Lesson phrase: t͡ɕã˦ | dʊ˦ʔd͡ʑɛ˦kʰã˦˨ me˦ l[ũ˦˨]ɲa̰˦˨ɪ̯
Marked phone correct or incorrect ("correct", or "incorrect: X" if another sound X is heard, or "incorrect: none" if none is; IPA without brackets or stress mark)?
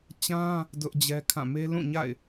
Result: correct